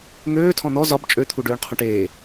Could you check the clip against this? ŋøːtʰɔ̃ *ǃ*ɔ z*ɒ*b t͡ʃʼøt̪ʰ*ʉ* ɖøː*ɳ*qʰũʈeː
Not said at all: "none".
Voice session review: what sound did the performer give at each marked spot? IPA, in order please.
n̪, ɒ, u, ɳ

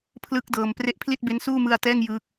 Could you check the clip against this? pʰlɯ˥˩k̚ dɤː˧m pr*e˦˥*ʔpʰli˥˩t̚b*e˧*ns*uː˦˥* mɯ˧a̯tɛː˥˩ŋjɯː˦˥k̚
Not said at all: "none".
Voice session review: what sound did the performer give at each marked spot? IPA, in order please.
e˦˥, e˦˥, uː˥˩

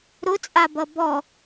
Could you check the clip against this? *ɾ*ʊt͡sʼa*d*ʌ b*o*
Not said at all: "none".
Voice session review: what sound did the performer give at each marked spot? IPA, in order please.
ɾ, b, ɔ

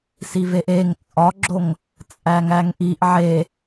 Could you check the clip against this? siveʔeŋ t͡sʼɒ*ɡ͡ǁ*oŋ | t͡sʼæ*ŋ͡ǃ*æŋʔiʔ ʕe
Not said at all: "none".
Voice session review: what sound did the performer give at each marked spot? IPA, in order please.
ɡ͡ǁ, ŋ

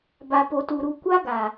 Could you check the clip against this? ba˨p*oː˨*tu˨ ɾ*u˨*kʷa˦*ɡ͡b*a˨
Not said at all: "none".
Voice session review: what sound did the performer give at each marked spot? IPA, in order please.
o˨, u˨, ɡ

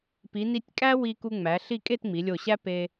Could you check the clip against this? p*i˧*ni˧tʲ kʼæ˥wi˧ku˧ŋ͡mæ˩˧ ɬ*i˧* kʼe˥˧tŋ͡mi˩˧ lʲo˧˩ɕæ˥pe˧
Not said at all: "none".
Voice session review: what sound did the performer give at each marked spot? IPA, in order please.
i˩˧, i˥˧

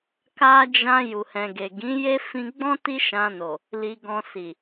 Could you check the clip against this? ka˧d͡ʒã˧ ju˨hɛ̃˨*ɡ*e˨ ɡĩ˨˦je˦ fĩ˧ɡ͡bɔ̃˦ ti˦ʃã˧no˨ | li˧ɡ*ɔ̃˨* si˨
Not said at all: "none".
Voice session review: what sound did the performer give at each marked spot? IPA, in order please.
ɡ, ɔ̃˧

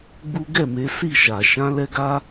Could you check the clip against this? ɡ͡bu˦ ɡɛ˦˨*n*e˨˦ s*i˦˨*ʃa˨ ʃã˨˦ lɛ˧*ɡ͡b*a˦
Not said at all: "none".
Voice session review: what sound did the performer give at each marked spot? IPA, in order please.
m, i˦˨, ɡ

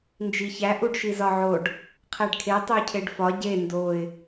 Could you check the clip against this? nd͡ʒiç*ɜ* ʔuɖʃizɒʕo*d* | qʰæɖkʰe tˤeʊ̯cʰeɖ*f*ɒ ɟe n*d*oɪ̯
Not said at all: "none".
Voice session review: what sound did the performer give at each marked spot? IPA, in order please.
æ, ɖ, f, d

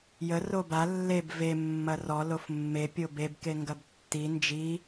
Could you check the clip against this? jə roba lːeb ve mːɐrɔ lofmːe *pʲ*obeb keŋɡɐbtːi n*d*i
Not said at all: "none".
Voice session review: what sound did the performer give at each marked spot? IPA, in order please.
pʲ, d͡ʒ

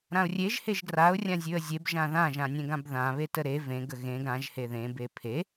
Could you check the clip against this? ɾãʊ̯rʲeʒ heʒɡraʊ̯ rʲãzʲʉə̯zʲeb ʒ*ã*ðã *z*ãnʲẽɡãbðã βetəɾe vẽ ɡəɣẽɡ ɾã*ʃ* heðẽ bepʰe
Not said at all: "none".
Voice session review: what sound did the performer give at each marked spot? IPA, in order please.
ã, ʒ, ʒ

